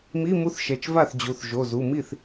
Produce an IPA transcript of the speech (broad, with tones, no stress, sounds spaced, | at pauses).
m i˧˥˧ m u˧˥˧ θ ʃ ɛ˩˧˩ t͡ʃ v a˥˩ θ d͡ʑ u˩˧˩ θ ʒ o˩˧˩ z u˩˧˩ m i˥˩ θ